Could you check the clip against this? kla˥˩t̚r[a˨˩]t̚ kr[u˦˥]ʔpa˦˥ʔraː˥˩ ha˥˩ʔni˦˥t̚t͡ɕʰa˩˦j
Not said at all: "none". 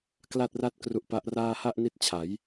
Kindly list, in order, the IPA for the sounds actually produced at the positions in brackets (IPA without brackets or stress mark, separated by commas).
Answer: a˥˩, u˦˥